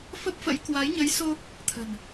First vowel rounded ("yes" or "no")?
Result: no